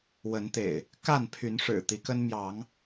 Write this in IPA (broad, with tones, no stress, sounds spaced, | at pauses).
w ə˨˦ n t̪ ḛ˨˩ ɪ̯ | k a˥˨ n pʰ y˨˦ n ʂ ɻ̩˨˩ t̪ i˨˦ k ə˦ n m j ɑ˨˦ ŋ